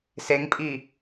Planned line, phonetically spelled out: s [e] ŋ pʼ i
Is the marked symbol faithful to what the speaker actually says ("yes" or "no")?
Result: yes